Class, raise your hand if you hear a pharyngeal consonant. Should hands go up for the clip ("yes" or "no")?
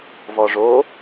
no